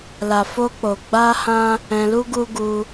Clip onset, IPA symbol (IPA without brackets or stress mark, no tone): l